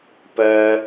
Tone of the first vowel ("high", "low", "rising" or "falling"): low